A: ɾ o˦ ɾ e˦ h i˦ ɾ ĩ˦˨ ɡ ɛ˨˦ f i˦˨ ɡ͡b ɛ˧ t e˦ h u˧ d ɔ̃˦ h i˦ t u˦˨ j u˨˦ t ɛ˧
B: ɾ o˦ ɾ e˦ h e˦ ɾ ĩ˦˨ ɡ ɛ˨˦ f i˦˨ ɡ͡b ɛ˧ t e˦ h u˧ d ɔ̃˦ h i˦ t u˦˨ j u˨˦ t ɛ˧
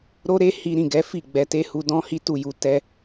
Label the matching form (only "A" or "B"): A